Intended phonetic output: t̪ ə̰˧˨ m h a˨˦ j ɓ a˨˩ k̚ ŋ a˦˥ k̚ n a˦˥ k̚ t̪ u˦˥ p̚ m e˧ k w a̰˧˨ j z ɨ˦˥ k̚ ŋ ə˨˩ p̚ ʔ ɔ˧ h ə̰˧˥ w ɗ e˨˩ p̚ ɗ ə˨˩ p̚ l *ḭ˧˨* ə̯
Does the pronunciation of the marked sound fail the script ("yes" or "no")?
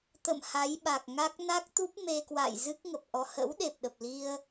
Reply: yes